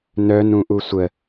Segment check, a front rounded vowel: present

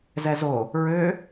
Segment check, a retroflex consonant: absent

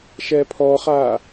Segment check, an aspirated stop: present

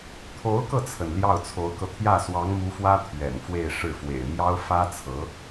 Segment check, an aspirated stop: present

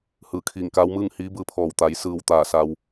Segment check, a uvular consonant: absent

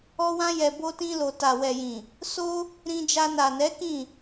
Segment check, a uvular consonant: absent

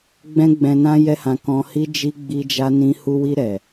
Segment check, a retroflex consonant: absent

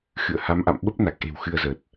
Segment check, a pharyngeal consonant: absent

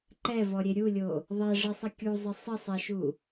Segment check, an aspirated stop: absent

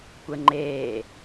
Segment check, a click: present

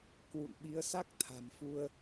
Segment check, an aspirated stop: present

